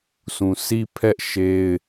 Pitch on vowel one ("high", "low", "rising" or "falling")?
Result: low